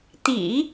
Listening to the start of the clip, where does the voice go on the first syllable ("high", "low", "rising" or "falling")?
low